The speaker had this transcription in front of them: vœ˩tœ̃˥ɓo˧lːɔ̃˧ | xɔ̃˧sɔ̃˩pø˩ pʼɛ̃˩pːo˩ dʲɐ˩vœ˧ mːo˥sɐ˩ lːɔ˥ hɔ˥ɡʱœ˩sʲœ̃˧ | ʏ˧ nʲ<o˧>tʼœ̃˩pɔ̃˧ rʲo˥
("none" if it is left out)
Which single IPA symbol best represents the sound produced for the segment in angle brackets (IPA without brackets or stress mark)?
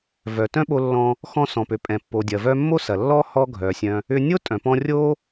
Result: o˥